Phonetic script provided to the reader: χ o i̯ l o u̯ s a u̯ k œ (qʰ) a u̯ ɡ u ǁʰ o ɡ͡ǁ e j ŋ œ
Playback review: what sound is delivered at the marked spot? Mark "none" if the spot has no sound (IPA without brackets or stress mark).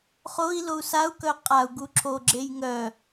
qʼ